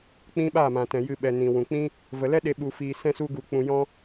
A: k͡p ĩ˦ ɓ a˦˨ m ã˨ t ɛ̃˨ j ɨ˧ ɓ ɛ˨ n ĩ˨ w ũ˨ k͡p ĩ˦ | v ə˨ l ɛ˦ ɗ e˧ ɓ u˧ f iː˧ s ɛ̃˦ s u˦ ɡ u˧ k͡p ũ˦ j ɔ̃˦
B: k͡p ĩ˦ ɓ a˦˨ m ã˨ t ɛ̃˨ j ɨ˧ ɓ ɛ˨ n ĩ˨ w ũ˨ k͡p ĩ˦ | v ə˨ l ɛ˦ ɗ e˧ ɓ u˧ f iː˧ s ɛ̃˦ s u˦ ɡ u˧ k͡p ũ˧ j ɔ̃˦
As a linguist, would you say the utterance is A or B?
B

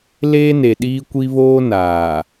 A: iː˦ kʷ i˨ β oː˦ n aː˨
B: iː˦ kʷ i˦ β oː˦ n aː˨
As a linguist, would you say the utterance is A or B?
B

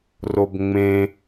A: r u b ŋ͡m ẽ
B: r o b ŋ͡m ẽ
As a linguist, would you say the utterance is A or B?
B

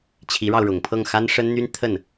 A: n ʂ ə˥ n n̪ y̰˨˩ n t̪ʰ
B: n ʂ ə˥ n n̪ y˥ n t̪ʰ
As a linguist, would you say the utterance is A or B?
B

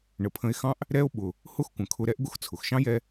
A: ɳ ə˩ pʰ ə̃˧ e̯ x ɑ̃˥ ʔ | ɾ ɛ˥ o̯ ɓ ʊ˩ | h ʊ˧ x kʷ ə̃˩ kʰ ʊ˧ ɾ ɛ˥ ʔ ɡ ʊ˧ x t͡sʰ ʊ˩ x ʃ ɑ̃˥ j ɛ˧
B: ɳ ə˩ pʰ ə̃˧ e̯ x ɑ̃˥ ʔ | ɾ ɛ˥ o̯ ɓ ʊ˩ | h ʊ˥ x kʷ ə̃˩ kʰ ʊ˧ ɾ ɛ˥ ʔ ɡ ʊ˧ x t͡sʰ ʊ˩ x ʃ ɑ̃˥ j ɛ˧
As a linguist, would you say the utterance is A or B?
B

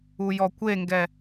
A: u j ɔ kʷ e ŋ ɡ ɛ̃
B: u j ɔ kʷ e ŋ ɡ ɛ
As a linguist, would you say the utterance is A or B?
B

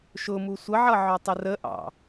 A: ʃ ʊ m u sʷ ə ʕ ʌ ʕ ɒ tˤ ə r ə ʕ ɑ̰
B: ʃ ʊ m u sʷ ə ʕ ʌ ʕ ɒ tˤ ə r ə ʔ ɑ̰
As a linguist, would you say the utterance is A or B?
B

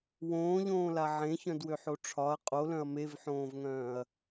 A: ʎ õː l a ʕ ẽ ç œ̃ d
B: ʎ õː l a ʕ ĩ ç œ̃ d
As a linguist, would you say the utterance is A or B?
A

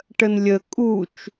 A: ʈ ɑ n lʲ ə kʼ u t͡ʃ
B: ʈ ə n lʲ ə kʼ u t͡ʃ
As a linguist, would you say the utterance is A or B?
B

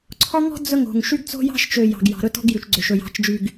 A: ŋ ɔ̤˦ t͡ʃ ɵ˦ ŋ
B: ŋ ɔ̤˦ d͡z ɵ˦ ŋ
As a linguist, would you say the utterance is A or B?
B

